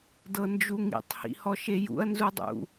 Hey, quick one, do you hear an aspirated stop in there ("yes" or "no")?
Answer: no